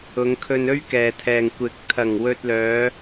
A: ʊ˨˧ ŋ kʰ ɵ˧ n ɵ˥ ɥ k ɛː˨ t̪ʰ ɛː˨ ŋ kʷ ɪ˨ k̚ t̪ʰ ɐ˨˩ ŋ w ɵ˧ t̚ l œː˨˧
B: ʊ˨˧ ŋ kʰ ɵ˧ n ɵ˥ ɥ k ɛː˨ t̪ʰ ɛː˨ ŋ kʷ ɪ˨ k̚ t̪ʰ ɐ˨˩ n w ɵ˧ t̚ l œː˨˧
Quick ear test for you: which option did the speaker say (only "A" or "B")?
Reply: A